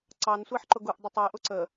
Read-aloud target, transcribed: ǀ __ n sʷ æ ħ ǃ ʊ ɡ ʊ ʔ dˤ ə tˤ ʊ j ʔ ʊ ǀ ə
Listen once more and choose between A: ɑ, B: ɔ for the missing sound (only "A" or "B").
A